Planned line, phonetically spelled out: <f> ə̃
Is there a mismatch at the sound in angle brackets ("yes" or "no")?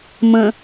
yes